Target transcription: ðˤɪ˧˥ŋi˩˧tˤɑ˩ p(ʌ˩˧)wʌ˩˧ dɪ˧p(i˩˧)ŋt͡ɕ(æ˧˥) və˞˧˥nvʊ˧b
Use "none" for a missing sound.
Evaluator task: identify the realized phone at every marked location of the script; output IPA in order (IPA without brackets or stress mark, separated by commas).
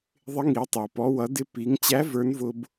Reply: ɔ˩˧, i˩˧, æ˧˥